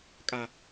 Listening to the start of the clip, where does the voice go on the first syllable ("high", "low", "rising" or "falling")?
high